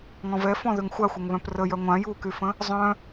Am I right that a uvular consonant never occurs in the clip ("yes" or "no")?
yes